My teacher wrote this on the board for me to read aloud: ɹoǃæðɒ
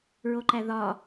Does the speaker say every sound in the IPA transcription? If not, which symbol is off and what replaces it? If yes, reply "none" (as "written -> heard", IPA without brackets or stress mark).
none